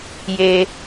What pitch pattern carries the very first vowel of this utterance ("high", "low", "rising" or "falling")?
low